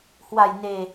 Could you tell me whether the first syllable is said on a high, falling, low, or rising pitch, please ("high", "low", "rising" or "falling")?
low